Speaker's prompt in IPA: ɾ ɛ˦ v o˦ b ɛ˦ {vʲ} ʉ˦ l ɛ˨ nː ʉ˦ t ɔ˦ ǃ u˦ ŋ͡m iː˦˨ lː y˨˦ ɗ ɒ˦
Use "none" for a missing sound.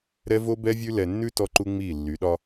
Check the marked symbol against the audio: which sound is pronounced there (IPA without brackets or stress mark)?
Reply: vʲ